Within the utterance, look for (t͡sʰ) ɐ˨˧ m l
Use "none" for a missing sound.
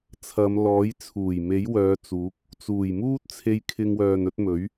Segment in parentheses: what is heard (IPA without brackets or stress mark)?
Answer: t͡sʰ